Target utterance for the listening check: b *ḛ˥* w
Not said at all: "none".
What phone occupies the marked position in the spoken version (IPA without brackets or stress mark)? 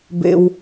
ḛ˥